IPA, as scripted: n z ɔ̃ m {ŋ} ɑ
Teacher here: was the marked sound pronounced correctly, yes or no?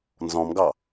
no